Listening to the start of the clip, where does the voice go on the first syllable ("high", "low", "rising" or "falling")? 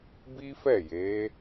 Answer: high